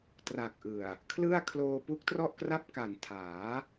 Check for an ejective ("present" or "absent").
absent